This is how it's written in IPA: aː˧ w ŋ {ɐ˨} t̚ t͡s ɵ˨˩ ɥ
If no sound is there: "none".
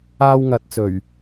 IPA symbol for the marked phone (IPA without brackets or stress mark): ɐ˨